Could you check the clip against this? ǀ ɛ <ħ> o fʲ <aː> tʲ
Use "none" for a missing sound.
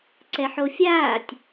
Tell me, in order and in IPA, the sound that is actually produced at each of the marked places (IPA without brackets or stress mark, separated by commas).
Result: ħ, aː